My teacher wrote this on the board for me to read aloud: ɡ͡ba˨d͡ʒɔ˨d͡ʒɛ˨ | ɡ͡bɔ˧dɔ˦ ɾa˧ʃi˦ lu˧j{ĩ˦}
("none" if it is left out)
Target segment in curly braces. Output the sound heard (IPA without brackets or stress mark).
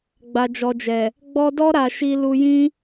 ĩ˦